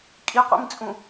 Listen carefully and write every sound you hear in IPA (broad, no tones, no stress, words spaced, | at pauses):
kʼiqʷḭmt͡sʼũ